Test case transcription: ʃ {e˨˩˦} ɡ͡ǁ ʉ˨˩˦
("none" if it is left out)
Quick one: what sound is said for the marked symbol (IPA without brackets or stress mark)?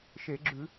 e˨˩˦